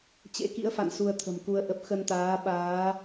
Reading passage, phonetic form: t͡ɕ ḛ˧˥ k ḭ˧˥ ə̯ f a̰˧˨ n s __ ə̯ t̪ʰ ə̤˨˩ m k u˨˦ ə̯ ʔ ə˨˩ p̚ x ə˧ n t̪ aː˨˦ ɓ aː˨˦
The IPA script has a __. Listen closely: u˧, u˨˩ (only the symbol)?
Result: u˧